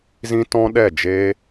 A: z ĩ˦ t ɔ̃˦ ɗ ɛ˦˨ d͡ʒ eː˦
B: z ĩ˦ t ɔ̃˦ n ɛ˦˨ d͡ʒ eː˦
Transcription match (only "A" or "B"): A